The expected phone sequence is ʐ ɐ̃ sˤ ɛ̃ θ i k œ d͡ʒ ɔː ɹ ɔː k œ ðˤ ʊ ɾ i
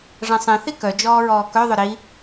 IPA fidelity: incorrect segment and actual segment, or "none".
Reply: none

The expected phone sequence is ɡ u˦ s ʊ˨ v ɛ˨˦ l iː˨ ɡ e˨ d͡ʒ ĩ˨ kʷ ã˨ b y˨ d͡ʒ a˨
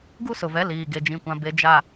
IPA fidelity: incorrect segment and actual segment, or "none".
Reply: y˨ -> e˨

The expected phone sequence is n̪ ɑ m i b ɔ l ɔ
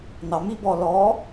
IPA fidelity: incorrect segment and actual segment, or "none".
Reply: none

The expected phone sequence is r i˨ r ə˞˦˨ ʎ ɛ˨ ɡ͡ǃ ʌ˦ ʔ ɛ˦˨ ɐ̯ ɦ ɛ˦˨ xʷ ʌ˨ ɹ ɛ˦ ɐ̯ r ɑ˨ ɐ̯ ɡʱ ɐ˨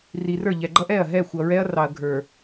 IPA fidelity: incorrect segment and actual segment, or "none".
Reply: ɐ˨ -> ə˞˨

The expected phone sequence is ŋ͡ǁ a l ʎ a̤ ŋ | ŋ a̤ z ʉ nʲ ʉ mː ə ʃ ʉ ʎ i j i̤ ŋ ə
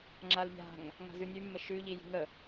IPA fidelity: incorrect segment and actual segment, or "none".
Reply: none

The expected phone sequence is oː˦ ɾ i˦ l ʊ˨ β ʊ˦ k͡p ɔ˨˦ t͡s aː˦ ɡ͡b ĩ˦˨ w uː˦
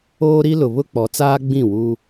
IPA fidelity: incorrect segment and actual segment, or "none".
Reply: none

